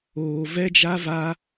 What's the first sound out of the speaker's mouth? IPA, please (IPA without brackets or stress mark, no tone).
oː